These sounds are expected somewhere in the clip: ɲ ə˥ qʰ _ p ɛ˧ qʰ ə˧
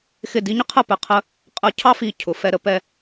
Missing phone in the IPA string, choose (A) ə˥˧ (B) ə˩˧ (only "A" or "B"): A